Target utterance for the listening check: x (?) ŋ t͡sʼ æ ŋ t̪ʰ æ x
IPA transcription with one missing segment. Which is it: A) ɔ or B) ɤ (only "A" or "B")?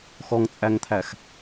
A